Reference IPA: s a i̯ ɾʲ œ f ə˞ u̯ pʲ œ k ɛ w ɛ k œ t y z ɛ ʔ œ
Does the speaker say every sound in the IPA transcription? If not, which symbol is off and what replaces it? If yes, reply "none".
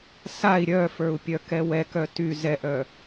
none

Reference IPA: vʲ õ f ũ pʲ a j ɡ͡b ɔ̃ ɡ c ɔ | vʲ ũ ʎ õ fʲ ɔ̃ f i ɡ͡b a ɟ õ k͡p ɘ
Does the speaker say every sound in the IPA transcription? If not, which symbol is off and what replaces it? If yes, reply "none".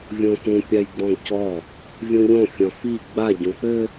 none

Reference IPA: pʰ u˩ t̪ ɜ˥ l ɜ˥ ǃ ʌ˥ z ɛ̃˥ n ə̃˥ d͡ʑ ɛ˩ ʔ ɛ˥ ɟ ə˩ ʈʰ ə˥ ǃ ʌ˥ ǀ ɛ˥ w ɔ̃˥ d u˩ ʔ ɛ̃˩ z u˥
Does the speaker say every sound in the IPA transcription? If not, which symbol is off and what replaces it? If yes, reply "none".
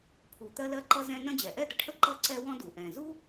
ɟ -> d̪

